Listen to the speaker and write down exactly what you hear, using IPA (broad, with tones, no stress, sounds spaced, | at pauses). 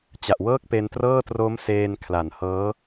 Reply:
t͡ɕ a˨˩ ʔ w ɤː˥˩ k̚ p e˧ n t r ɤː˥˩ t r o˦˥ m s eː˧ n kʰ l a˨˩ n h ɤː˦˥